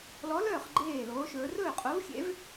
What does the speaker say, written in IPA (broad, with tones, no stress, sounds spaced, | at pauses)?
l ɔ˧˥ l œː˥˨ χ ɡ͡ǃ eː˥˨ l oː˧˥ ʃ ɵː˧˥ r ɵː˥˨ qʼ o˧˥ v xʲ ḛ˧˥ v